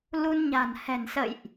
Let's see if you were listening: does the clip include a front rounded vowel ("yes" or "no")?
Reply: no